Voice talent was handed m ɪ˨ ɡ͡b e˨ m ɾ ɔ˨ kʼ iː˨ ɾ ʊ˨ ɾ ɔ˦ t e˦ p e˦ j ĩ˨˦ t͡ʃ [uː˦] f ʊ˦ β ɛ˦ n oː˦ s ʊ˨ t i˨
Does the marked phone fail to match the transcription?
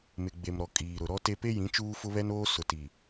no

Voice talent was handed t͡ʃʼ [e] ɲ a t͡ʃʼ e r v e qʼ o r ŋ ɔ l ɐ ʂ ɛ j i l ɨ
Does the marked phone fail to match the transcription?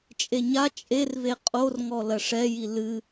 no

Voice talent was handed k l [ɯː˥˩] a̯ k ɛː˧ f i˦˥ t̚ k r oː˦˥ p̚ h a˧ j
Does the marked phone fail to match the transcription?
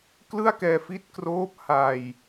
yes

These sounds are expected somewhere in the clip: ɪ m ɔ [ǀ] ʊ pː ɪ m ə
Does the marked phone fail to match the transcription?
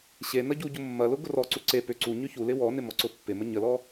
no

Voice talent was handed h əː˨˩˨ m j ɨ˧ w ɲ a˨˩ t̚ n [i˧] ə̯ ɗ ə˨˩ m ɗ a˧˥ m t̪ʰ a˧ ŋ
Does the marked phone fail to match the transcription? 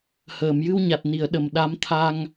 yes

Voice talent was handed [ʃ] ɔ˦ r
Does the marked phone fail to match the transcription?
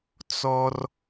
yes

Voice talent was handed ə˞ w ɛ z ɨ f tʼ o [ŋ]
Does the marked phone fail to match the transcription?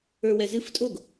yes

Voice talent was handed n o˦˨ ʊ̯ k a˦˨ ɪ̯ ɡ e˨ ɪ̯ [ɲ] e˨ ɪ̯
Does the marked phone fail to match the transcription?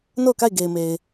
yes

